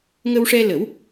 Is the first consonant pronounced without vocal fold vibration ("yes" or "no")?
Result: no